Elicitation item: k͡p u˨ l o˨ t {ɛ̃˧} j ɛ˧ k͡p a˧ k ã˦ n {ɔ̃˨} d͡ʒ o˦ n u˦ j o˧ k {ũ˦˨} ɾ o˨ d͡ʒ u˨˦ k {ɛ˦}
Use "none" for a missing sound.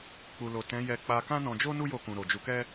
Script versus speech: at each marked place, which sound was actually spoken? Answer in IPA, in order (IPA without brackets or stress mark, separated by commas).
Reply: ɛ̃˨˦, ɔ̃˧, ũ˨, ɛ˦